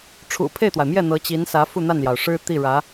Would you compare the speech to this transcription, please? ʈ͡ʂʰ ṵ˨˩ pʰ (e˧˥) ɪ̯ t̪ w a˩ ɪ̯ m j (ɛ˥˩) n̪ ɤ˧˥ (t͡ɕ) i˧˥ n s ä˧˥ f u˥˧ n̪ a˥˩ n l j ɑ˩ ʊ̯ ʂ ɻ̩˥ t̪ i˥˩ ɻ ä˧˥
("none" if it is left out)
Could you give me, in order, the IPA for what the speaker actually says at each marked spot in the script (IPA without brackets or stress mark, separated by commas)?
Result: e˥˩, ɛ˥˩, t͡ɕ